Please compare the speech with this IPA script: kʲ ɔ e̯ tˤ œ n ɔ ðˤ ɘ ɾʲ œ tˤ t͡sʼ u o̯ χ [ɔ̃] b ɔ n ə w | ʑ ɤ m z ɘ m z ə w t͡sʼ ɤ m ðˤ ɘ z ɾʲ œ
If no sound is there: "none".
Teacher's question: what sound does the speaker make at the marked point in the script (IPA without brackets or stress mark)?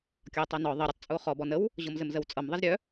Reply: ɔ